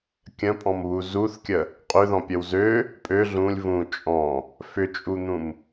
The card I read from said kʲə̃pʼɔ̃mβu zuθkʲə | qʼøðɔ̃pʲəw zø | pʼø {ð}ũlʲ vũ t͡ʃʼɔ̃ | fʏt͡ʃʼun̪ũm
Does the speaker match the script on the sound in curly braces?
no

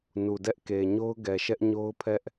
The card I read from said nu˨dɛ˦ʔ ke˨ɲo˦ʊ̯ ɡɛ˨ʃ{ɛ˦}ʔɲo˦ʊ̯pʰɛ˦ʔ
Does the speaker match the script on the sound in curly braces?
yes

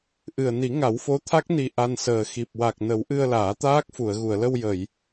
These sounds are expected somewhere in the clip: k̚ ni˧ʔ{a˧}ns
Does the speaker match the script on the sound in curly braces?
yes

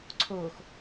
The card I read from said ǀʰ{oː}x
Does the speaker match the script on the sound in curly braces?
yes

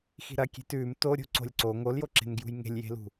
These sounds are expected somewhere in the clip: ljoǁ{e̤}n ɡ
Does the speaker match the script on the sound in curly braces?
yes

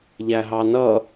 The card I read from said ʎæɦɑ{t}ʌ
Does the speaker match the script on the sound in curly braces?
no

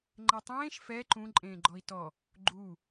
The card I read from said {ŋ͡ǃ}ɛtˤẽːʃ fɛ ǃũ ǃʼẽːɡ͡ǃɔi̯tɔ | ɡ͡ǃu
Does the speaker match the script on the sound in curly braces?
yes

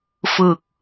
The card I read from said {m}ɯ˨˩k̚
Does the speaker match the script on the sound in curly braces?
no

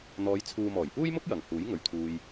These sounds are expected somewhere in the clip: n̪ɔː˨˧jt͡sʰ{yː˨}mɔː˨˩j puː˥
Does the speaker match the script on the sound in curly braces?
no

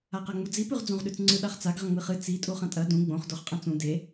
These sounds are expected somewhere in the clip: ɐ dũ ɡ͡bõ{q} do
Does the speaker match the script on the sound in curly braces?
no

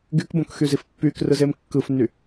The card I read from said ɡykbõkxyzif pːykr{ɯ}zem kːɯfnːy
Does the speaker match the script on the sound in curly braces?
yes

